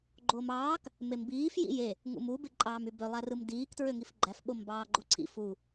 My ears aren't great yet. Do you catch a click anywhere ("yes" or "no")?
yes